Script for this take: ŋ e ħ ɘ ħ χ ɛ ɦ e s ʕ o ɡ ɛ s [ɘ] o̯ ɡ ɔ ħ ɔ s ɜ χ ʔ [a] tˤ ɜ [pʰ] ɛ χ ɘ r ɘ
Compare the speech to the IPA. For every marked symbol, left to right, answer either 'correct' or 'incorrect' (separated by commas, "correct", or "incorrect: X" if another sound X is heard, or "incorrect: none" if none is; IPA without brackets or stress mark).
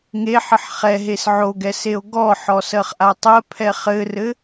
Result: incorrect: e, correct, correct